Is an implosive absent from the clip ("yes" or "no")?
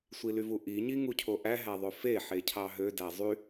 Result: yes